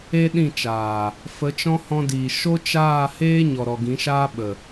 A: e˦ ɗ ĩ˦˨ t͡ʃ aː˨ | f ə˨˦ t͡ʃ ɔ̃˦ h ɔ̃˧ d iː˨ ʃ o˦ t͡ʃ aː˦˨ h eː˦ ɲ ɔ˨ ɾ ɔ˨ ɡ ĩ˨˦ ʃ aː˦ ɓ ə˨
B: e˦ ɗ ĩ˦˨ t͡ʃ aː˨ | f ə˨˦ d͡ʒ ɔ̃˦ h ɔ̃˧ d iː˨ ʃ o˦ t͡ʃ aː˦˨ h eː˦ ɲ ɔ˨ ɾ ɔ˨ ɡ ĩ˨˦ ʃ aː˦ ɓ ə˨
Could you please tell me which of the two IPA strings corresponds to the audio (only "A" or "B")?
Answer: A